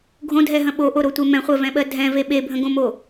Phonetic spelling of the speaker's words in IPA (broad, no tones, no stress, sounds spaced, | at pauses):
ɡʱ õ dʱ ɛ ɦ ə̃ ɓ o ʔ o ɾ o tʷ e m ɛ̃ χʷ ɜ v ɛ̃ ɓ ɜ dʱ ɛ̃ v e ɓ e bʱ ə̃ ɡ õ m o